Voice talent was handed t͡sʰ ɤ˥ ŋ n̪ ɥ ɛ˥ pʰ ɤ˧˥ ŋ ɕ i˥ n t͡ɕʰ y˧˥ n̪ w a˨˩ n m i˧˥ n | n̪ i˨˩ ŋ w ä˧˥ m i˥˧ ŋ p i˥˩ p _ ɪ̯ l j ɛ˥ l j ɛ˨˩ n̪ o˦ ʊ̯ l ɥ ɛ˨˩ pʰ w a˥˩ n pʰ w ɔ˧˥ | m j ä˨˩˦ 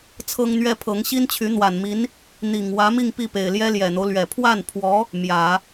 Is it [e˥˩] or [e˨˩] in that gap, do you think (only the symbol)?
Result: e˨˩